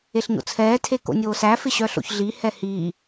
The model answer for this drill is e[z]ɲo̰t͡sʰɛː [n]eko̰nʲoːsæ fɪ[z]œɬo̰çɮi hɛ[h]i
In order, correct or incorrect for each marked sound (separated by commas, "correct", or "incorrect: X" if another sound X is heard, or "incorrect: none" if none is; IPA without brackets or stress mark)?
incorrect: ɬ, incorrect: tʰ, incorrect: ɕ, correct